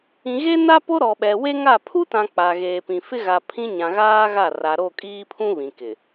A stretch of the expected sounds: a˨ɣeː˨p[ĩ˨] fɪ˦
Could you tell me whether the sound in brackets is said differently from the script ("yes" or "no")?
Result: no